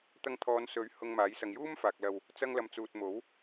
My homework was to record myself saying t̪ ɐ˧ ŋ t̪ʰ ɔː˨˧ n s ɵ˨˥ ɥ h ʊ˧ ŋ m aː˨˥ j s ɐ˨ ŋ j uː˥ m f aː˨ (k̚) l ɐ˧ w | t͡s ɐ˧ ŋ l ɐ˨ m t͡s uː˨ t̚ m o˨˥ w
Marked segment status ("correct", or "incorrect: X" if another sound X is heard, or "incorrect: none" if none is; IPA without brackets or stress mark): correct